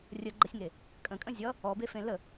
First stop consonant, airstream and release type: click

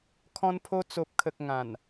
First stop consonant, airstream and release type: aspirated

